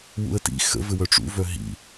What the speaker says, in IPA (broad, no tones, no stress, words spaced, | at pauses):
wṵə̯tḭ xə̰vɘwœ ʈ͡ʂṵvœ ɦḭ